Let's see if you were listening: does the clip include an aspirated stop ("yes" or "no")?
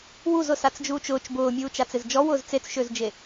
no